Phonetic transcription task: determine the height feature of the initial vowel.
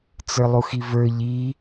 mid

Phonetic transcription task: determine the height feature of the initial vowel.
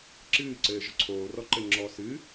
high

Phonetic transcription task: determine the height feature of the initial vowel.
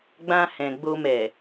low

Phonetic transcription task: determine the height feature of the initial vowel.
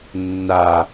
low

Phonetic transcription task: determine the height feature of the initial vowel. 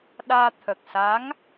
low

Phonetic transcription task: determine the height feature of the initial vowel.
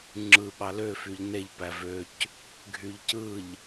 high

